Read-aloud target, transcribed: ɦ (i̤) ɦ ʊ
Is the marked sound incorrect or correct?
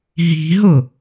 correct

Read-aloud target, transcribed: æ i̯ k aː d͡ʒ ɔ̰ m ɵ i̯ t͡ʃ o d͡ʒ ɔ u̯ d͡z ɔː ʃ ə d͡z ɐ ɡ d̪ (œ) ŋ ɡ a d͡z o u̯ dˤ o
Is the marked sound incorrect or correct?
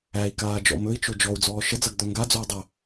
correct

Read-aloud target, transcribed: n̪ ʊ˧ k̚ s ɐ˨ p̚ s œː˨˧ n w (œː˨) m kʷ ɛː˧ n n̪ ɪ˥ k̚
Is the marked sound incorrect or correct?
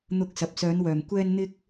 correct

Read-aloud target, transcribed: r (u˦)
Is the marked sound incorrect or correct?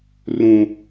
incorrect: ũ˦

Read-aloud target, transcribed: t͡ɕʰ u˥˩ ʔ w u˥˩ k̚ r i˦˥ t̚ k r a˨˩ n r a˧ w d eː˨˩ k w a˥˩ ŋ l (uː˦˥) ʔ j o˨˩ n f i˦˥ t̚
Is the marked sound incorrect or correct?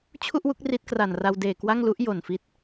incorrect: u˦˥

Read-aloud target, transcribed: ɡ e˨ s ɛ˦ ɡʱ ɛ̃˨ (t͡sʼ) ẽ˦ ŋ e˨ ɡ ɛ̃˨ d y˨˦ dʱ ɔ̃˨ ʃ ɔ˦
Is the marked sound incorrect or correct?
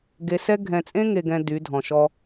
correct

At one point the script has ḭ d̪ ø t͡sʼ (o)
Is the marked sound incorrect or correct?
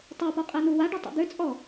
incorrect: ɔ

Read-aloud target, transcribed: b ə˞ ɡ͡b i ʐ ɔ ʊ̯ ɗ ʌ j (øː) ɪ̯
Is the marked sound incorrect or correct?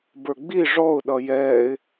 incorrect: ɛː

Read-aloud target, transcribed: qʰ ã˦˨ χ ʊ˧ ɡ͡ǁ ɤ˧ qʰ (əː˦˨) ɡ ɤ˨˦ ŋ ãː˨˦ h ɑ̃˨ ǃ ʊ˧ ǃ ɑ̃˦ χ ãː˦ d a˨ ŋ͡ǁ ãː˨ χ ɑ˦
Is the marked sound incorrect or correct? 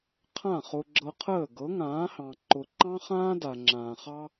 correct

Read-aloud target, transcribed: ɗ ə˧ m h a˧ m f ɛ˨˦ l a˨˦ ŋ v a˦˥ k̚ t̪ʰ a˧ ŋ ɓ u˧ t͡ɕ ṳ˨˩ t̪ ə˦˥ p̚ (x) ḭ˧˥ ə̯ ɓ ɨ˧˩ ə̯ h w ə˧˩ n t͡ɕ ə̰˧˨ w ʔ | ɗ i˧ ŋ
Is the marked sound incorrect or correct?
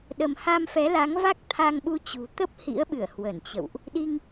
incorrect: h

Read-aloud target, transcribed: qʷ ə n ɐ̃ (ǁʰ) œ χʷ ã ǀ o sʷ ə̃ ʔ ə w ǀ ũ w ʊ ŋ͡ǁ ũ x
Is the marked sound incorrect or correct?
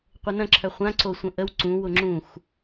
correct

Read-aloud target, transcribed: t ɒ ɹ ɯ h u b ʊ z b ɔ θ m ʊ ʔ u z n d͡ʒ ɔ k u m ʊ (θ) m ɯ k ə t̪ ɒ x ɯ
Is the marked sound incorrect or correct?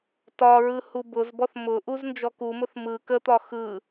correct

